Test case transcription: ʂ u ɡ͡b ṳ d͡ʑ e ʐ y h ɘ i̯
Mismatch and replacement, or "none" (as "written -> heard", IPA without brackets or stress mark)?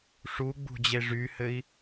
none